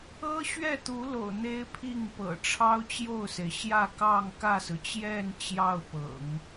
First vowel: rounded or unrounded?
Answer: unrounded